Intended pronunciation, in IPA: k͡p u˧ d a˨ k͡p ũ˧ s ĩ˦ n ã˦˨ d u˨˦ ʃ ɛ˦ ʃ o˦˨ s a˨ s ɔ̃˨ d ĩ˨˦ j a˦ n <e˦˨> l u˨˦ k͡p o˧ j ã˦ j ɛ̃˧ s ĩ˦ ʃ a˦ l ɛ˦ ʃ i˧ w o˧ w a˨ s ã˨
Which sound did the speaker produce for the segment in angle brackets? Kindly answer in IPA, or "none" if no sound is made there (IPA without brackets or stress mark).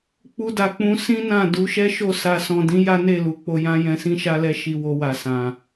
e˦˨